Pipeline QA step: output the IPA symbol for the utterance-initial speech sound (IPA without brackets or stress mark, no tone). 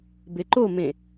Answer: b